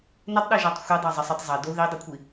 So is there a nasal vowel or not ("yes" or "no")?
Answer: no